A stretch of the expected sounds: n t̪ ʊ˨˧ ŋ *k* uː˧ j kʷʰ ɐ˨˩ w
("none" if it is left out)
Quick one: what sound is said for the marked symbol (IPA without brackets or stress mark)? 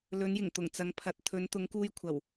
k